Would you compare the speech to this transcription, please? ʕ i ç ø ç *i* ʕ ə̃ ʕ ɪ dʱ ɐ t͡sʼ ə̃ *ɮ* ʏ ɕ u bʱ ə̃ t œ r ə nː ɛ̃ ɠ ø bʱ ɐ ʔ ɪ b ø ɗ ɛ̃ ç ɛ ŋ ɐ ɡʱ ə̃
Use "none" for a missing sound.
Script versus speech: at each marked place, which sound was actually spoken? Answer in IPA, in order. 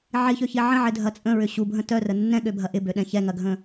i, ɹ

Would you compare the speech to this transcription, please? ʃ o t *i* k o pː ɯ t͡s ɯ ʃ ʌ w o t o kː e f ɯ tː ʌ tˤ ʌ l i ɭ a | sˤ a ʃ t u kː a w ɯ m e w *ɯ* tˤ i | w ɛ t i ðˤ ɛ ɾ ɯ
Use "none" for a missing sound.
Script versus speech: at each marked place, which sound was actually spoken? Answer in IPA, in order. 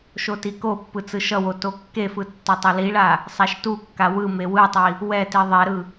i, ɯ

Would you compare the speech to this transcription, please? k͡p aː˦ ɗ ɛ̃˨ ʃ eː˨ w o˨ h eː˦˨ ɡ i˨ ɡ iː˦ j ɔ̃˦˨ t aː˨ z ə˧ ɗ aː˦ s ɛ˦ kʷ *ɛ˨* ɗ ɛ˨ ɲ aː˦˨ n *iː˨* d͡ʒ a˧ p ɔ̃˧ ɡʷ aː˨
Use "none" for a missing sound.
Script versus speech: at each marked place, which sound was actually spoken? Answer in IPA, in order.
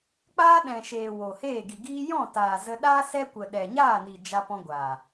ə˨, i˨

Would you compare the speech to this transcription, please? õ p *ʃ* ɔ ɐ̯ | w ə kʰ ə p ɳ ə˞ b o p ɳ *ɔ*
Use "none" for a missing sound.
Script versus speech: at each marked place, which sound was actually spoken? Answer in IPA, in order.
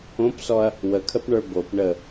s, ə

